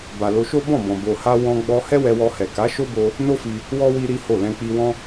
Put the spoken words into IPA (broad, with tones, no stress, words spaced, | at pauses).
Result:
ba˨ lo˧ʃo˦ bɔ̃˦˨bɔ̃˨ bo˨ha˧ wɔ̃˧ɡ͡bɔ˧ hɛ˦wɛ˧wɔ˧hɛ˨ ka˨˦ ʃo˦bo˧ | no˦fi˧ | wɔ˦ wi˦ɾi˦ho˦˨ lɛ̃˧k͡pi˧wɔ̃˦